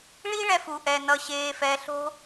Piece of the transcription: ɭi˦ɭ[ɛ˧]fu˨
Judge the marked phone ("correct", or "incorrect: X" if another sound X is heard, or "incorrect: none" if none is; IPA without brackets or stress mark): correct